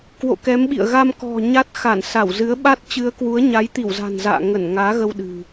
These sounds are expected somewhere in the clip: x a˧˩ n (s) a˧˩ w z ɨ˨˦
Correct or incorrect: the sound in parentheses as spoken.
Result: correct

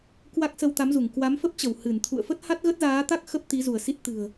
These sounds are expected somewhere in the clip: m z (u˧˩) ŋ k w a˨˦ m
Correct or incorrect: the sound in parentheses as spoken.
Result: correct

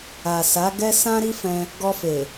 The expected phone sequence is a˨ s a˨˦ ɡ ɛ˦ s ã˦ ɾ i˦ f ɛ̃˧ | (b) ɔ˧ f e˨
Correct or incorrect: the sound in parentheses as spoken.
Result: incorrect: ɡ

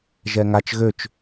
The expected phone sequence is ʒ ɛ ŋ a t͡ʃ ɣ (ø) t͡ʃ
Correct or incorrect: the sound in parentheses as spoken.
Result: correct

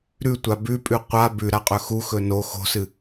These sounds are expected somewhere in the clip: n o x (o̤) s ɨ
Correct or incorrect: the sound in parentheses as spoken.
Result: correct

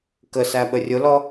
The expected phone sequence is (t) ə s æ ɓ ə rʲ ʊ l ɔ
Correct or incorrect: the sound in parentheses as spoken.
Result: incorrect: k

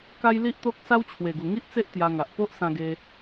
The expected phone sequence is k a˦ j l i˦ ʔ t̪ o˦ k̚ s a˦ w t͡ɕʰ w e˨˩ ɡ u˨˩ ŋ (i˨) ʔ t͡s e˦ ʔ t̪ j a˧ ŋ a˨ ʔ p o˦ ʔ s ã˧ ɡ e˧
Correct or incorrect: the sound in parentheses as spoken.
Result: incorrect: i˦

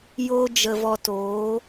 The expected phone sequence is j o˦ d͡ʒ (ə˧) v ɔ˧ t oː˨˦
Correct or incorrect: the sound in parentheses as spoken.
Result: correct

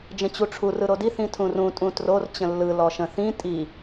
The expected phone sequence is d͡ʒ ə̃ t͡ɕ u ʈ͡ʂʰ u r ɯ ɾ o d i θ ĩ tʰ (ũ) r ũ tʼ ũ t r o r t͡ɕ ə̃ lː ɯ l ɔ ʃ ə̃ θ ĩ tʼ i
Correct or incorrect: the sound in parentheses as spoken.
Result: correct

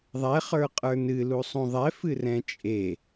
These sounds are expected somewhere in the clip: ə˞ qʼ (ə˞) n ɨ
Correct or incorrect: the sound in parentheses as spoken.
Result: correct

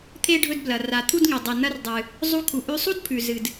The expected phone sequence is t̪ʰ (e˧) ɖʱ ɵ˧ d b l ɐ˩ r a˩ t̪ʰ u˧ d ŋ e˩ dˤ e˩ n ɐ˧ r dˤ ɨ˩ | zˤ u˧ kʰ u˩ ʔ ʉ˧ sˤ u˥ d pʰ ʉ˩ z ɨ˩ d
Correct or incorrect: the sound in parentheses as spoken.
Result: correct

